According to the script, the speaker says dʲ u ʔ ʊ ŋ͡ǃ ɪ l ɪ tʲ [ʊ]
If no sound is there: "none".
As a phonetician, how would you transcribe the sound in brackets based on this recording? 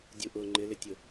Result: ʊ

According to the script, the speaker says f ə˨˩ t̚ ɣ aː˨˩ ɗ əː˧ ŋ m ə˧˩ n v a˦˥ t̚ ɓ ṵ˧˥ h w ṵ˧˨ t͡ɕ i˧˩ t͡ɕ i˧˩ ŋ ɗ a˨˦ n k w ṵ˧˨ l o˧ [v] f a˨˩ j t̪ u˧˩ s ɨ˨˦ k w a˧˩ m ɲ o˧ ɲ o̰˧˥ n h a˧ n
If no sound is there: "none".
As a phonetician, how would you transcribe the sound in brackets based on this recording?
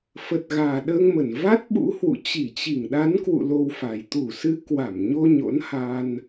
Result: w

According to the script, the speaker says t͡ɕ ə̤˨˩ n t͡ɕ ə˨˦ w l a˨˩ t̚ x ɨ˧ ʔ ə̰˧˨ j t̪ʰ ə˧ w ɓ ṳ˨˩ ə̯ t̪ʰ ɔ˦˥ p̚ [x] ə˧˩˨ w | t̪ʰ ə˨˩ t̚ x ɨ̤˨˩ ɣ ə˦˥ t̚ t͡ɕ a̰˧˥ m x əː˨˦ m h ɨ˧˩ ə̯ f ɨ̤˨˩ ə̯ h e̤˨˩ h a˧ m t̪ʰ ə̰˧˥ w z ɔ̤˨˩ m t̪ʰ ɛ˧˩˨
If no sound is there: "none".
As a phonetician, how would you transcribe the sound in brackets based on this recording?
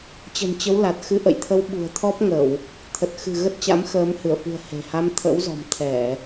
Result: ŋ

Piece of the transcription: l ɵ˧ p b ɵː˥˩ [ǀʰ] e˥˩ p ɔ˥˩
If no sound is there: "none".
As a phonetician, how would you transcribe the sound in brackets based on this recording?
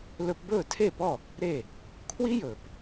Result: tʰ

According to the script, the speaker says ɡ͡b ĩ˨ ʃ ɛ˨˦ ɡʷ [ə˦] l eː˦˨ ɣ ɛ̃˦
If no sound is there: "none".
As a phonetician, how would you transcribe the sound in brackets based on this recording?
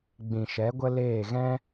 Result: ə˦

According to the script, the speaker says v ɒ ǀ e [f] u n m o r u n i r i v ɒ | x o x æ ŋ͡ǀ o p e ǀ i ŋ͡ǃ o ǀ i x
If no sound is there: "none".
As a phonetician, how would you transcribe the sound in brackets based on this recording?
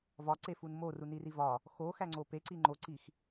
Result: f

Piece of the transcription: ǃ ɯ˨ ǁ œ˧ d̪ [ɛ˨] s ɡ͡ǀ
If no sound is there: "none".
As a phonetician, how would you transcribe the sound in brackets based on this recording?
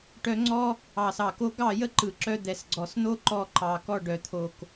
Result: ɛ˨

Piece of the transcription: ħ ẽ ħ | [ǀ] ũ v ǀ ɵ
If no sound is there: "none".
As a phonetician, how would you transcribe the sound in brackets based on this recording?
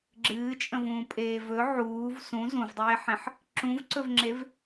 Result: ǁ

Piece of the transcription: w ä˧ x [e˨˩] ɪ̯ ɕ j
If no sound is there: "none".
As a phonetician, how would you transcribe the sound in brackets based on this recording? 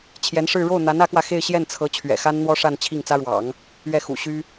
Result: e˥˧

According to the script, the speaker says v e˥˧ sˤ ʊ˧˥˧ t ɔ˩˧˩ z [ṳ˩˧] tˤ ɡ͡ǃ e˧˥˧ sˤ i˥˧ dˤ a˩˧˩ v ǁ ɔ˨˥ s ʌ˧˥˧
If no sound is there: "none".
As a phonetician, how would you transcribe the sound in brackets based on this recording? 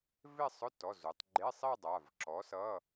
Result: u˩˧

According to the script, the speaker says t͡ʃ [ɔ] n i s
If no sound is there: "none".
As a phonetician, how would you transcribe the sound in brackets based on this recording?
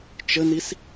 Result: ə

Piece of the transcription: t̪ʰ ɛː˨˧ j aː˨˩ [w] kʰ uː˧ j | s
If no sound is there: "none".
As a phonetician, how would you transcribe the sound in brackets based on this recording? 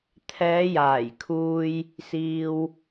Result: j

